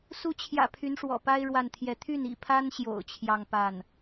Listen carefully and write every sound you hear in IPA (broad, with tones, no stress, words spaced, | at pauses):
su˧˥t͡ɕʰjä̰˨˩ pʰy˧˥nʂwɔ̰˨˩pa˥ɪ̯ ɻwa˥˧nt̪ʰjɛ˥˧ t̪ʰy˥˩nḭ˨˩pʰa˥nɕjo̰˨˩ʊ̯ t͡ɕʰjɑ˥˧ŋpa˥˩n